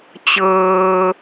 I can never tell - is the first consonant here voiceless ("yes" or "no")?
yes